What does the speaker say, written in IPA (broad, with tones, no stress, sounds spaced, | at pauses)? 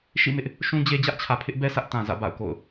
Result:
ʃ ḭ˦˨ m ɪ˦ ʔ | ʃ ũ˦ d͡ʑ e˦ d͡ʑ ä˦ ʔ t͡ɕʰ ä˨ pʰ ɪ˦ ʔ b ɛ˦ s ä˦ ʔ t ã˨ z ä̰˦˨ b a̰˦˨ ʊ̯ k o̰˦˨ ʊ̯